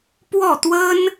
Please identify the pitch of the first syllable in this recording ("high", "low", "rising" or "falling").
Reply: falling